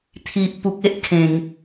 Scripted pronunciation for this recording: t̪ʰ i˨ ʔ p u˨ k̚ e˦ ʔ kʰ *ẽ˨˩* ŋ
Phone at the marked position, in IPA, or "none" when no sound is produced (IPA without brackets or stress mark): ẽ˨˩